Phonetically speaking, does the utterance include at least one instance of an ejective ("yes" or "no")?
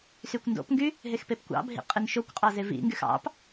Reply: yes